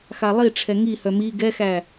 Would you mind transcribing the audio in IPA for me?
x a lˠ i ʈ͡ʂʰ ɛ ŋ i h œ m i ɡ ɛ x æ

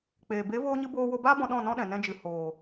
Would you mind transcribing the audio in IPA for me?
k͡p eː˨ b e˨˦ v oː˧ ɲ ɨ˧ b oː˧ w o˧ b aː˦ b ɔ̃˧ ɗ ɔ̃˦˨ n ɔ̃˦ ɗ ɛ̃˨ n ɛ̃˧ d͡ʒ ɨ˨ h oː˨

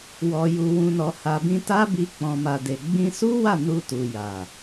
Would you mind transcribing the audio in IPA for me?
w ɔ˨ j u˨ w ũ˨ n ɔ˨ h a˨ b ĩ˧ t a˦ b i˧ k͡p ɔ̃˨ m a˨ d e˨ ɡ͡b ĩ˧ s u˦ w a˦˨ n u˧ t u˨ j a˨

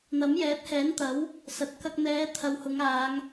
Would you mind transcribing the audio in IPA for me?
n̪ ɐ˨˥ m j ɛː˨˥ t̚ h ɛː˨˥ n t̪ ɐ˨˥ w | s ɐ˨ t̚ k ɐ˧ k̚ n̪ ɛː˨˧ t̪ʰ ɐ˨˧ w h ʊ˨˧ ŋ aː˨˧ ŋ

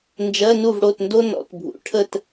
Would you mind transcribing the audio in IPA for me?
n d͡ʒ ɜ˧˥˧ n u˥˨ v ɽ o˥˨ t n d o˥ n ɔ̰˩˧ t bʱ ṵ˩˧ ʈʰ ə˥˨ t

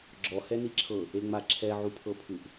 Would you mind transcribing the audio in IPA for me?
ɡ͡ǁ ɔ h ɛ n i ǁʰ ɤ | e ŋ͡m a ǁʰ ɛ ʕ u pʰ ɤ pʰ ɯ ʔ

